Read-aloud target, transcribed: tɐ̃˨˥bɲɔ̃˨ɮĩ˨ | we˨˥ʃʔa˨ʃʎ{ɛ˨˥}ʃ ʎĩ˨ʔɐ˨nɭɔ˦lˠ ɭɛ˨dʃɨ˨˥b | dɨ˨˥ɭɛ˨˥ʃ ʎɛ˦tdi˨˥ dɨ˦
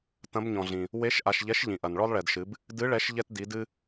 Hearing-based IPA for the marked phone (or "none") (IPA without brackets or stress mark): ɛ˨˥